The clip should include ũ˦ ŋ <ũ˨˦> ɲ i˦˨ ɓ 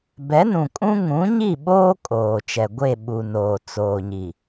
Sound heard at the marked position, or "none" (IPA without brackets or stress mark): ũ˨˦